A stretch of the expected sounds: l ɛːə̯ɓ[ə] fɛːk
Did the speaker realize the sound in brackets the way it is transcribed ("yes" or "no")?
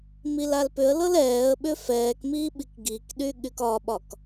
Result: no